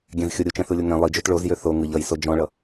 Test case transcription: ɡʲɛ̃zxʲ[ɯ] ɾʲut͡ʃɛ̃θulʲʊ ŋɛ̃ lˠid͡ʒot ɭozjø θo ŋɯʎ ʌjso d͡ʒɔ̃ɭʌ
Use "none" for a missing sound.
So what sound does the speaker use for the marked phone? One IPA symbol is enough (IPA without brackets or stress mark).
ʊ